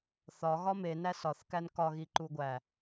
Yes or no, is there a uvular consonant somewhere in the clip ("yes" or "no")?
no